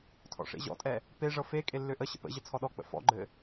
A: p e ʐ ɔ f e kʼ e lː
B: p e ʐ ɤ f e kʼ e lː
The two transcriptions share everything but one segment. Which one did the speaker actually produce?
B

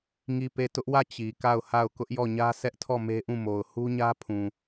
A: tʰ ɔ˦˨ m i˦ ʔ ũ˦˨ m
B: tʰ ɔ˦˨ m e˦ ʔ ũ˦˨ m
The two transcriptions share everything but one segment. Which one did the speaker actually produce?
B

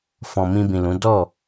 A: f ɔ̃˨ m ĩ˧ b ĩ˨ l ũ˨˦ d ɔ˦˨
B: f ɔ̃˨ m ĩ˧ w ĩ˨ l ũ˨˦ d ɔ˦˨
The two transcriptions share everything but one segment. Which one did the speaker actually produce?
A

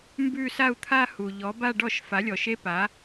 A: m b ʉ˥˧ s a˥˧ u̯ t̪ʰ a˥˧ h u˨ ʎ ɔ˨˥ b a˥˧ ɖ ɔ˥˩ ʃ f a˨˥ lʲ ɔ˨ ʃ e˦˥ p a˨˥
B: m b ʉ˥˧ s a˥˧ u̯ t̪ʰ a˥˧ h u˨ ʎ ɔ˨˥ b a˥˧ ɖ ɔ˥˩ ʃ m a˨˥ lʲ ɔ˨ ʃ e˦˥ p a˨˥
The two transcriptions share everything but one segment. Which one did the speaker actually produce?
A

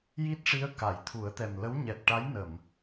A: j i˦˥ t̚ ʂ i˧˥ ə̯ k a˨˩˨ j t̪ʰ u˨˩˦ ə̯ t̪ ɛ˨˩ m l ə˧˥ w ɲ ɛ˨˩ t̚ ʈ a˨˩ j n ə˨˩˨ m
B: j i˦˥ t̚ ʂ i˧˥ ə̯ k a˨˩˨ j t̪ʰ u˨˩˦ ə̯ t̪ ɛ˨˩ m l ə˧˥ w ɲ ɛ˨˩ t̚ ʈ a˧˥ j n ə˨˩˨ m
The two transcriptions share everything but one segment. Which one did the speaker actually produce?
B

